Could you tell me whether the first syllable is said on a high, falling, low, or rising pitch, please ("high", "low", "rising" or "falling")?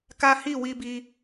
high